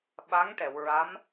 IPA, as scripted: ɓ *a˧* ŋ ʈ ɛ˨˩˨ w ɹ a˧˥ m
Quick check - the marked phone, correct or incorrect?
incorrect